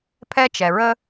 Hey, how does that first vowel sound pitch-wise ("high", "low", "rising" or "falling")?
high